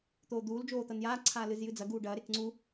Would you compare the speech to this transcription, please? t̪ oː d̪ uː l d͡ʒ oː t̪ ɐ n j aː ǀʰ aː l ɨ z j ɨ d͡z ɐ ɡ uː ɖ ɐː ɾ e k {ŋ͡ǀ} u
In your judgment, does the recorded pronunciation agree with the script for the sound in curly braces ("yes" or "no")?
yes